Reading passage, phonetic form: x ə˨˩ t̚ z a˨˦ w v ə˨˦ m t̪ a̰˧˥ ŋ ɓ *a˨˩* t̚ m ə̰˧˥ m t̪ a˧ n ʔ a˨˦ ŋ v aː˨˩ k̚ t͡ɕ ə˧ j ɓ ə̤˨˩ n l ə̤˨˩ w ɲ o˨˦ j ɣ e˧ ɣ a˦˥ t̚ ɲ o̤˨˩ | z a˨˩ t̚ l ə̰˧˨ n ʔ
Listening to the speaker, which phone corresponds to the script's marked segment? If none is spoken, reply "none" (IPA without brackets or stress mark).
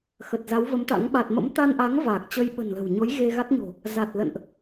a˨˩